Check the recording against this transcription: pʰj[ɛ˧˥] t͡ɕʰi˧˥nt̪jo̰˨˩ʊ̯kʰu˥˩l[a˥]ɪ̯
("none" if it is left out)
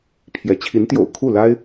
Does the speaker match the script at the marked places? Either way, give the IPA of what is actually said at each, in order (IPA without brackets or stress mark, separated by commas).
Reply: ɛ˧˥, a˥